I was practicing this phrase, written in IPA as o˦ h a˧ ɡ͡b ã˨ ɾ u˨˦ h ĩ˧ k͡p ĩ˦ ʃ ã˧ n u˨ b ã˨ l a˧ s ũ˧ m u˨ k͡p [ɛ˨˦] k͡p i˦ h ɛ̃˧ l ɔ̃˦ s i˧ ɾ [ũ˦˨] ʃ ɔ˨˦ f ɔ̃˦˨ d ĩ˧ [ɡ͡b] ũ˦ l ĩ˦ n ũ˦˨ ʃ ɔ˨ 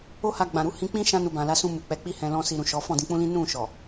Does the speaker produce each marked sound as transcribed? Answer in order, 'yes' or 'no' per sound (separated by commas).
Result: yes, no, no